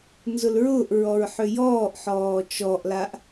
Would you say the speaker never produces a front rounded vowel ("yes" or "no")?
no